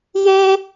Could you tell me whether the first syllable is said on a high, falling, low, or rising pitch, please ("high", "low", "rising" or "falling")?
high